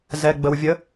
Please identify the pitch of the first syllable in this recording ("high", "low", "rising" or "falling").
low